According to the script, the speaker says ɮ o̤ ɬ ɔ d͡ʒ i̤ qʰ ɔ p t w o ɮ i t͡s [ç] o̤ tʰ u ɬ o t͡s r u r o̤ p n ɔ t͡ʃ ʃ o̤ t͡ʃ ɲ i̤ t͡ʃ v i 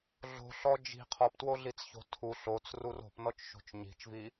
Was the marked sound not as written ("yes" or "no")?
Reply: no